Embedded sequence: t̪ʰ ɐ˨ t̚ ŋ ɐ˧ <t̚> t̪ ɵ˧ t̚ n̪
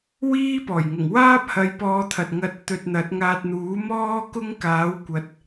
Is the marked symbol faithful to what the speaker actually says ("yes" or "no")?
yes